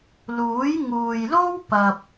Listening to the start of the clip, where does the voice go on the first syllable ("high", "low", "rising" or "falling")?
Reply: rising